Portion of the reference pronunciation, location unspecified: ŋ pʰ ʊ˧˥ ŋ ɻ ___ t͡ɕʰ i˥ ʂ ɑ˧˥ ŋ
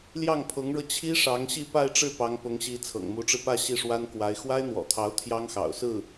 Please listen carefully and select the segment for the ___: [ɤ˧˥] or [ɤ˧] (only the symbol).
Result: ɤ˧